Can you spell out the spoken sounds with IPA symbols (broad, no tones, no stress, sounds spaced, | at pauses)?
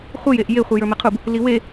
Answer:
χʷ ɯ j e ʔ j e χʷ ɯ j ə˞ m e qʰ u b | l i w e